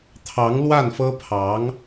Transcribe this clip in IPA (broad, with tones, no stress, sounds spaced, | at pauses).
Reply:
t̪ʰ ɑ˧˥ ŋ l w a˥˩ n f ɤ˥ pʰ ɑ˧˥ ŋ